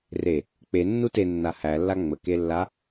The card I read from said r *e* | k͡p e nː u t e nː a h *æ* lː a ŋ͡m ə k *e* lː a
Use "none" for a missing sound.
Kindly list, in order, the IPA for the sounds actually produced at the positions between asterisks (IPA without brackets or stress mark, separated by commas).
e, æ, e